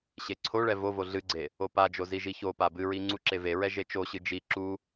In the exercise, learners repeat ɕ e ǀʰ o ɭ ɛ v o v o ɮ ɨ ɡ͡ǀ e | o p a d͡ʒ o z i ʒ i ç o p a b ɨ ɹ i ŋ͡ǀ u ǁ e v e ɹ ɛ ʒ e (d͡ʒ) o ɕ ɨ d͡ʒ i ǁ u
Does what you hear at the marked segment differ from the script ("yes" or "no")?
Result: yes